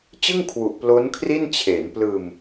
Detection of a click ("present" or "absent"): absent